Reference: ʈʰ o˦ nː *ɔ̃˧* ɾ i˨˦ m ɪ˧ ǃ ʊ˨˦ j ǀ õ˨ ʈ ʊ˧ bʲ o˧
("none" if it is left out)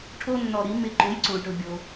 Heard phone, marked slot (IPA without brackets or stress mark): ɔ˧